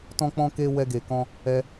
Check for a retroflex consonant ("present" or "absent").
absent